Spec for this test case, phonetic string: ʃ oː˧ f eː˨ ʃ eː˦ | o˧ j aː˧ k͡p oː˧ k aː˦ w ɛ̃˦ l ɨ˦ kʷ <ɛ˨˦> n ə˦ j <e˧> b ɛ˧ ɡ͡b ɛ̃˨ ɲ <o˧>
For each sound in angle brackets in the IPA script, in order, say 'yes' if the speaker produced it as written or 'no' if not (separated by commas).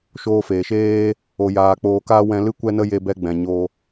no, yes, yes